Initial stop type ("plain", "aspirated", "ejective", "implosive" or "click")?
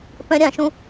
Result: plain